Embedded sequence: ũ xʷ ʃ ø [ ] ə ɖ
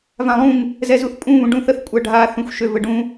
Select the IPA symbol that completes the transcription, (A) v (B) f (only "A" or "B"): A